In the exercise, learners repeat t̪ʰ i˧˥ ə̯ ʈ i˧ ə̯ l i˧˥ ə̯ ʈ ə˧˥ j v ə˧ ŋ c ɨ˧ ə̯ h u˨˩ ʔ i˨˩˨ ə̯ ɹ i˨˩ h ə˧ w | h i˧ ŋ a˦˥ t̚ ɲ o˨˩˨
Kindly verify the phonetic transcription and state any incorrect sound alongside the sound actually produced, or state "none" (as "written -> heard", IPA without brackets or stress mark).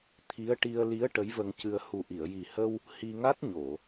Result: ɹ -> j